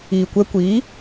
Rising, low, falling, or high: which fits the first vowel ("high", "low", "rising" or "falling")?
low